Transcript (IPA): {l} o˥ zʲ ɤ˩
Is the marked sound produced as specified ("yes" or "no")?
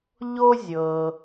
no